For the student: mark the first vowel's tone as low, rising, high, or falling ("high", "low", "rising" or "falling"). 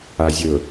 low